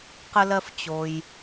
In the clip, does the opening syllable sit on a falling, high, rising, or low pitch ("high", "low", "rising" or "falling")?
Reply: high